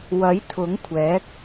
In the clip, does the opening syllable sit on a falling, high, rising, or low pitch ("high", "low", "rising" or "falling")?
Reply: rising